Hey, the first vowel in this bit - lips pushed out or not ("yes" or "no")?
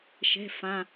no